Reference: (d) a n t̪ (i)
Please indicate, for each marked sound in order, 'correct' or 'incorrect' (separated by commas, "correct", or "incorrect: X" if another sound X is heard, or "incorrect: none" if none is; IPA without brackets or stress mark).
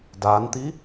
correct, correct